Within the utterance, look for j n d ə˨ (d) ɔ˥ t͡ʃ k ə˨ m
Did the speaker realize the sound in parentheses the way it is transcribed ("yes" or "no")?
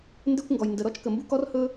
no